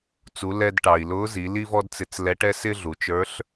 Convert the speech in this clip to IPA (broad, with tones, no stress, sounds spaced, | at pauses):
t͡s u˩˧ l ɛ˧ d ʈ ɑ˩ i̯ l ʊː˧˥ z i˩˧ l i˥ v ɔ˥ d t͡s ɪ˧ t͡s l ɛ˧˥ ʈ ɛ˥ s ɪ˥ ɮ u˩˧ t͡ʃ ə˞˧˥ ɬ